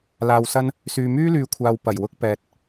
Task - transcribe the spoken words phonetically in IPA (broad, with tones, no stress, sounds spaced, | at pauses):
l aː˧ w s ɐ˥ n | s yː˨ m yː˥ l yː˨˧ kʷʰ aː˨ w p ɐ˨˩ j w ʊ˧ k̚ p ɛː˨ t̚